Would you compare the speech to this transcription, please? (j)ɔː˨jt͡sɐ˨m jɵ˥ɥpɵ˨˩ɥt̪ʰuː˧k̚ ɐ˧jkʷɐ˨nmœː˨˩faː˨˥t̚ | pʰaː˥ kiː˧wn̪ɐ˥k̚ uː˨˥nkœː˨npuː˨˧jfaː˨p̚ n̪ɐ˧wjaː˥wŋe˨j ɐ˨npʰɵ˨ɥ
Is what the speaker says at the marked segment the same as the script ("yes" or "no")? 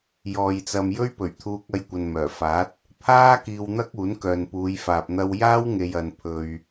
yes